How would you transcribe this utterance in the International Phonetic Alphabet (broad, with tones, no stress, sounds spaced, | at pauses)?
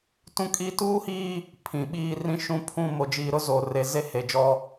t ũ˦ kʼ iː˦ t uː˦ h iː˦ | pʰ ĩ˨ ɓ iː˦ r ĩ˦ ʃ ũ˦ pʰ ũ˦˨ m o˨ d͡ʒ iː˨ ɾ ʊ˦ z o˨ r e˨ z e˦ h e˨ d͡ʒ ɔ˦